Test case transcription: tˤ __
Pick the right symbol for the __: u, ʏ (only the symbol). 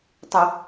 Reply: ʏ